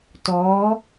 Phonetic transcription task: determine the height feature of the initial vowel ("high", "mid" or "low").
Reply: mid